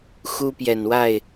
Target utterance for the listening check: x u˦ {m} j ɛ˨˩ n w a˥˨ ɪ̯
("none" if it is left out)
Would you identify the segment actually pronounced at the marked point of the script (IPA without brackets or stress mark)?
p